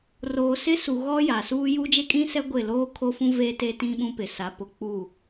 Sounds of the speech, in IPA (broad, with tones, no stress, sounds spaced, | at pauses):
r oː˨ s ɪ˦ s u˨ ɣ ɔ˦ j a˨ s uː˦ j u˦ d͡ʒ e˦ kʼ ĩ˦ s ɛ˦ ɡʷ ɪ˦˨ l oː˦ kʰ o˦ f ũ˦ v e˦ t e˦ t ĩ˦ ɓ ũ˦ p ɪ˨ s a˨˦ p ʊ˨ k͡p uː˦˨